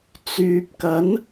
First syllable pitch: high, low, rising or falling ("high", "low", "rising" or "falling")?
low